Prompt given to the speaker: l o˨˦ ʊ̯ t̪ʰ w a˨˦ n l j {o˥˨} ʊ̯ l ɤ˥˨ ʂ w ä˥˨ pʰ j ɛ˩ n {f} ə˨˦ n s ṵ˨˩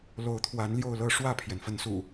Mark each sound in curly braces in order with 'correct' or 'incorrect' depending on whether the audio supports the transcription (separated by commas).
correct, correct